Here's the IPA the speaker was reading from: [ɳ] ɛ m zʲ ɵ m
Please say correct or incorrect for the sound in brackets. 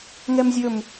incorrect